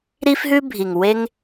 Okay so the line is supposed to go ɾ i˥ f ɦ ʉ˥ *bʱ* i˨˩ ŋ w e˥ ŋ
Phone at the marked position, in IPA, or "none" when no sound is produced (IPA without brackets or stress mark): bʱ